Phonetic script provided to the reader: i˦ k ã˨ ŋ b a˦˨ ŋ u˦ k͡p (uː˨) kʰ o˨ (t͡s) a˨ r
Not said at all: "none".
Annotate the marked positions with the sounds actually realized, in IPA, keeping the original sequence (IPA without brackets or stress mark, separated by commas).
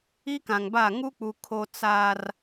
u˨, t͡s